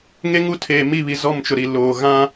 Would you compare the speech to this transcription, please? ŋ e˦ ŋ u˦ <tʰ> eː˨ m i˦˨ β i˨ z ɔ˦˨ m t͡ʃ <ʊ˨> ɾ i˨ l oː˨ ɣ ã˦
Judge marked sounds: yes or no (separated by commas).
yes, yes